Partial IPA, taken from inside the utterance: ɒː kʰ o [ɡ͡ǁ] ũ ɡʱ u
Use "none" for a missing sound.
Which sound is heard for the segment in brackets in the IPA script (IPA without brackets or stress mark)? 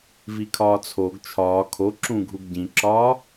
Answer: ǁ